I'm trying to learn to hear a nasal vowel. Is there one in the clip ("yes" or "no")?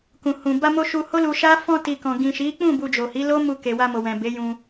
yes